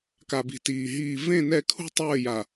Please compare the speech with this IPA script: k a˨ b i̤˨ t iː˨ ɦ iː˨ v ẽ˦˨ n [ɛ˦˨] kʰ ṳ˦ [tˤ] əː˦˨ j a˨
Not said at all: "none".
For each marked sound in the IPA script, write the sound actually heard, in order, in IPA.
ɛ˦˨, tˤ

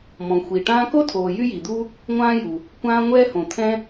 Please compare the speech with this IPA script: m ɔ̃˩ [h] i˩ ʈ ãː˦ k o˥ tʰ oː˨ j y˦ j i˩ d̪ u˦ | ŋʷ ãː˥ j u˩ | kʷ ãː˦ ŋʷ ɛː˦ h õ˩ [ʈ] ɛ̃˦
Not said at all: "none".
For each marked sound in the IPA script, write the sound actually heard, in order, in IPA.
xʷ, t̪ʰ

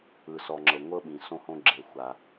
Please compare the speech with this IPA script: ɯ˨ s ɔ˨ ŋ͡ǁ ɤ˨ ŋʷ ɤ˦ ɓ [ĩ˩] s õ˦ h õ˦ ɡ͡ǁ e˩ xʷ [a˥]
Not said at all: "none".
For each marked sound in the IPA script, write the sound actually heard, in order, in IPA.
ĩ˩, a˩

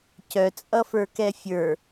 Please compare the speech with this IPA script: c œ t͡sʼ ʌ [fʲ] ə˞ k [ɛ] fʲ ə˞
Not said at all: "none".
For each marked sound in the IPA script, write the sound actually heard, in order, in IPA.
f, ɛ

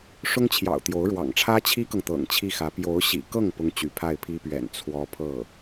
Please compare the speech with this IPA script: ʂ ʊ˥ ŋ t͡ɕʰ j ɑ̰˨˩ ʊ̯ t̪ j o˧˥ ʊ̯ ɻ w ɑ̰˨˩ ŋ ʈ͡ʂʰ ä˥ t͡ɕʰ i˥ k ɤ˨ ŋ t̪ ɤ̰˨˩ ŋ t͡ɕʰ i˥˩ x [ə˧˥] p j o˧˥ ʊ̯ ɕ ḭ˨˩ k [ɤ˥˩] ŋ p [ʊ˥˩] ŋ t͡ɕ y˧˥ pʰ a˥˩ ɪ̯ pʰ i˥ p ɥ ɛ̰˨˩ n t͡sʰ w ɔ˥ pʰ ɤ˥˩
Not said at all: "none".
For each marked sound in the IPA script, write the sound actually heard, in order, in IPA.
ä˧˥, ɤ˥˩, ʊ˥

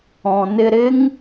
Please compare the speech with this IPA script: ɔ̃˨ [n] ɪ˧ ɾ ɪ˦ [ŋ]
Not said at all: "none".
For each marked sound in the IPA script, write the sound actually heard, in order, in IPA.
n, ŋ

